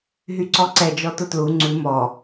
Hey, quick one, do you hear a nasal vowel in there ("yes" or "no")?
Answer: no